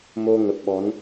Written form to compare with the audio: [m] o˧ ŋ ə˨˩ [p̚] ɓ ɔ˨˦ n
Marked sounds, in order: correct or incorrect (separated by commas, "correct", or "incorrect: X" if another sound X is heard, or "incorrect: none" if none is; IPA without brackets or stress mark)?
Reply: correct, correct